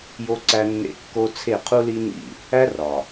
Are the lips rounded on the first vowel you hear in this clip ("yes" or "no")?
yes